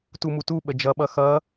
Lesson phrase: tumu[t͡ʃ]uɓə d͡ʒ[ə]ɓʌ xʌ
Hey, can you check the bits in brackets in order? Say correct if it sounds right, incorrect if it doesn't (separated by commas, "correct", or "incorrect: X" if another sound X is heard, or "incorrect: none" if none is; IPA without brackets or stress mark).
incorrect: t, incorrect: ʌ